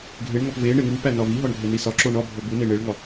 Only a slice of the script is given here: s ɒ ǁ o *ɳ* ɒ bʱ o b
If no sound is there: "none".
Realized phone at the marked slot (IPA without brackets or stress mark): ɳ